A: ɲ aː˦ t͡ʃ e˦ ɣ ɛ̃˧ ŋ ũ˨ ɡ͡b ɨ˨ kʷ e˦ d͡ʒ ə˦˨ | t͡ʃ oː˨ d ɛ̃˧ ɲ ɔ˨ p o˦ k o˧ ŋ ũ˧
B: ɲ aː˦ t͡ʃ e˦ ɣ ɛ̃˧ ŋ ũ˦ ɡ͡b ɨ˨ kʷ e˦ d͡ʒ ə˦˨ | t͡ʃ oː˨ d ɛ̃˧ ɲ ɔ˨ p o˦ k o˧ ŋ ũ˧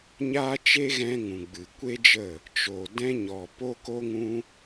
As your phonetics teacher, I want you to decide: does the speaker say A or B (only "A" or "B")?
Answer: A